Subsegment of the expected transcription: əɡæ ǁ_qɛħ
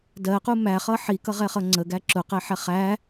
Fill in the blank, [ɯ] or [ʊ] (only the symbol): ʊ